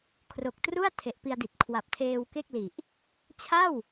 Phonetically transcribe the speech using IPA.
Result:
kʰ r o˨˩ k̚ t r u˥˩ a̯ tʰ e˨˩ ʔ p i˧ a̯ d i˨˩ t̚ kʰ w a˨˩ p̚ tʰ eː˧ w k e˥˩ k̚ l i˨˩ ʔ | t͡ɕʰ a˥˩ w

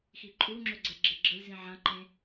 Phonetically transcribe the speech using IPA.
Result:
x i ǃʼ u ŋ͡ǁ ø ɡ͡ǀ ɛ ɡ͡ǁ e ɡ͡ǁ ə lʲ z ĩ ʕ ã ǃ ẽ

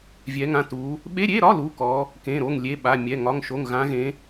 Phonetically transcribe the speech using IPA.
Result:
vʲ ɛ˧˥ ŋ ã˧˥˧ t u˧˥ | ɓ e˧˥˧ ɾʲ e˧˥˧ ɾ ɒ˧˥˧ l u˧˥˧ k ɔ˧˥ | k ẽ˧˥˧ ɾ o˧˥˧ ŋ lʲ e˧˥˧ ɓ a˧˥˧ mʲ ɛ˧˥˧ ŋ ɒ˧˥˧ ŋ ʃ o˧˥˧ ŋ ɣ ã˧˥ ɣ ẽ˧˥

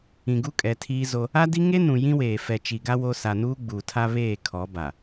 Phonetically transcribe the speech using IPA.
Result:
ĩ˨ ɡ u˦ kʼ ɛ˨ tʰ iː˦ z o˦ | a˦ d i˦ ŋ e˦ n ũ˨ j ĩ˦ w eː˨ f ɛ˨ t͡ʃ i˨ ɡ a˦ w o˦ s a˨ n uː˦ ɡ͡b uː˨ tʰ a˦ β eː˦˨ kʰ ɔ˨˦ b a˨

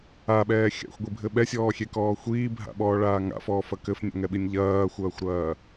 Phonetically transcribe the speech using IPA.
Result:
a ɓ ɛː xʲ a̰ xʷ ɡʷ i bʱ ɘ ɓ ɛ sʲ ɔː xʲ e k ɔː xʷ iː bʱ a̰ ɓ ɔː ɭ aː ŋ a̰ f ɔː f ɐ k ɘ f nʲ a̰ ŋ ɛ ɓ i nʲ ʎ ɐː xʷ ɐː xʷ ɾ ɐː

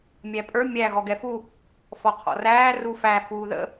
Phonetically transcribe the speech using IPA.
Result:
mʲ æ pʼ ə˞ mʲ æ ɣ ɔ ɡ ɛ f u | f ɔ qʰ ɔ̰ r æː r u f æ f uː ð ə̰

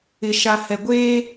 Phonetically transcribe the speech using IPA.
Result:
ɪ˨ ʃ a˨ h ɛ˨ ɡʷ eː˦

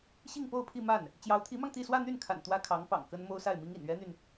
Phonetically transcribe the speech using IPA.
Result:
ɕ i˥˧ ŋ p o˥˧ ʊ̯ pʰ i˥˧ m a˥˩ n | t͡ɕ j ɑ˧˥ ʊ̯ t̪ʰ i˧˥ m ɑ˧ ŋ t̪ i˥˧ s w ä˥˧ n̪ y˥˩ n kʰ a̰˨˩ n t̪ w ä˥ kʰ ɑ˧˥ ŋ p ɑ̰˨˩ ŋ k ə˥ n m o˥ ʊ̯ s a˥˩ ɪ̯ m i˥ ŋ ḭ˨˩ n ɥ ɛ˥ n̪ y˨ n

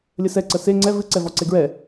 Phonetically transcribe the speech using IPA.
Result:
lʲ ə s ɛ ǀ ə s e ŋ͡ǀ ɛ v ɨ ǀ ɛ v ɔ ǀ e ɡ ɹ ɛ

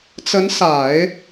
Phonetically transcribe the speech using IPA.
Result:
t͡s ə˧˥ n s a˨˩˦ ɪ̯

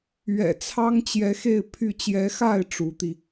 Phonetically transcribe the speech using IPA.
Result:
ɥ ɛ̰˨˩ t͡sʰ ɑ˥ ŋ t͡ɕ j ɛ˧˥ x e˥˧ ɪ̯ pʰ y˥˩ t͡ɕ j ɛ˧˥ x a˥˩ ɪ̯ ʈ͡ʂ u˧˥ t̪ i˧

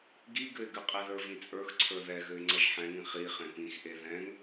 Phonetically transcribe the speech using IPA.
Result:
ɡ i ɡ ɘ ɪ̯ ɡ ɘ qʼ e ð ə˞ v ĩ t͡sʼ ə˞ x ǀʰ ə˞ ð ɛ ɣ ɘ ɪ̯ ŋ͡ǀ ʌ ʒ ħ ɛ̃ ŋ ĩ χ i χ ẽ p ĩ x ʔ e ð ɛ̃ ŋ

